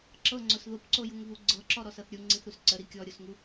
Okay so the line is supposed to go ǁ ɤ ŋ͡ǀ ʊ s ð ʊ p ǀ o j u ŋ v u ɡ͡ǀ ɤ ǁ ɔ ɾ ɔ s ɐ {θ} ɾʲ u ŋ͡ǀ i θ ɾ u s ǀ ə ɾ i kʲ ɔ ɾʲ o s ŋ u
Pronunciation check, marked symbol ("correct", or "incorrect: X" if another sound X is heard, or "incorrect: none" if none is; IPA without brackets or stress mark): correct